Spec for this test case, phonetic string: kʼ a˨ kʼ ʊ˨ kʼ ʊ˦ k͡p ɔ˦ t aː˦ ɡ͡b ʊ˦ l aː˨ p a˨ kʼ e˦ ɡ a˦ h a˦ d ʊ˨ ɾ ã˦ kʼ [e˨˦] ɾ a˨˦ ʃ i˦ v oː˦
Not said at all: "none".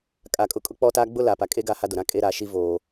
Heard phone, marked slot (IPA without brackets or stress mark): e˦